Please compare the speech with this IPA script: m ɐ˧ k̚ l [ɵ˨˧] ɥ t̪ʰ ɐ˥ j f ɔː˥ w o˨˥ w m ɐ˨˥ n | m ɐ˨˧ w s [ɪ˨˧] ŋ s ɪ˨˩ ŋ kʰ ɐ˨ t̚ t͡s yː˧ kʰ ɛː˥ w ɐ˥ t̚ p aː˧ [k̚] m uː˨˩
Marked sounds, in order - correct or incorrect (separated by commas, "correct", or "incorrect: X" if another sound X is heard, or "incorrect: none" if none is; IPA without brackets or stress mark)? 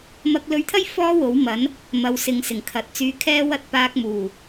incorrect: ɵ˧, incorrect: ɪ˨, correct